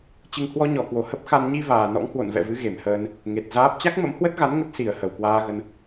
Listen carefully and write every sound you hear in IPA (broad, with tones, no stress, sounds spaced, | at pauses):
t͡ɕ ɨ˧ ŋ h w ɔ˧ ɲ ɔ˧˩ k w o˧˩ h ə˦˥ p̚ x a˧ n ɲ i˧ v aː˨˩ n ɔ̰˧˥ ŋ h w o̰˧˨ n v ɛ̰˧˨ v ɨ˨˦ ɣ e˧˩ m h əː˧ n | ŋ e˨˩ t̚ z aː˦˥ p̚ t͡ɕ a˦˥ k̚ m ə̰˧˥ m h w ə˦˥ t̚ ɣ a˨˦ n ŋ ə˦˥ t̚ s i˧˩ ə̯ h ə˨˩ w k w aː˧ ɣ ə˧ n